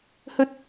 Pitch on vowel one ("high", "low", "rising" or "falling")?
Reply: high